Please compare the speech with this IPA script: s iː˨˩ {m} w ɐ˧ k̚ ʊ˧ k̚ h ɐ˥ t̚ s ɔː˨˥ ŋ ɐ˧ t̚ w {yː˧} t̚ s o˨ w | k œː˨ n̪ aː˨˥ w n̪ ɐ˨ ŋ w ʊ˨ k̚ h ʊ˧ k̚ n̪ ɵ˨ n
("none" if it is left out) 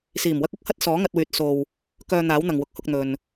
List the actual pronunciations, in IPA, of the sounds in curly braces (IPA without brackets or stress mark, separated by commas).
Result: m, yː˨˥